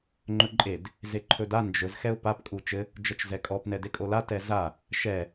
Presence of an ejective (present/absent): present